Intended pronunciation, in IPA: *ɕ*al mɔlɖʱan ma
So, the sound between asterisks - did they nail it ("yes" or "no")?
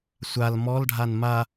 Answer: no